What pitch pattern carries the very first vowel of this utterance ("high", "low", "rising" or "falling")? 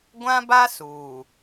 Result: high